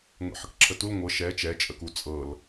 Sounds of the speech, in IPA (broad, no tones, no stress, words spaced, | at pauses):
ŋʷɛ̰ħəkǁʰətul ŋʷɤ ʃɛ t͡ʃɛt͡ʃʼəku t͡sʼɤl